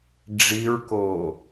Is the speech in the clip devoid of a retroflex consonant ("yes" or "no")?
no